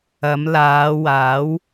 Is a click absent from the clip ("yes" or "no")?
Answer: yes